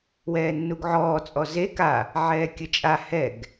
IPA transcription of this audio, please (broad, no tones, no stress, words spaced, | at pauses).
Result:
wɛːnːuɡʕɔː t͡sʼɔze ka | ʕɛːkʲət͡ʃʼa hɛɡ